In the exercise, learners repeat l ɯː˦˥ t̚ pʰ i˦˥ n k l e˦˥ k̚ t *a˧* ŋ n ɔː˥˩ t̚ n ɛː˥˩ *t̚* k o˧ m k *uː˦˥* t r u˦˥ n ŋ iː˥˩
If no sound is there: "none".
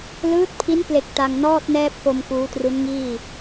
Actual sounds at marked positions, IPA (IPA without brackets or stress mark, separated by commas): a˧, p̚, uː˦˥